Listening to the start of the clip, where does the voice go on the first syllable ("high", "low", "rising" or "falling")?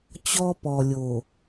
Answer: high